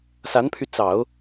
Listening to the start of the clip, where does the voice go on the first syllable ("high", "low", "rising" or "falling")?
rising